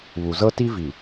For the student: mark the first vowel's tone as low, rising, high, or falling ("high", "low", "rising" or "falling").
low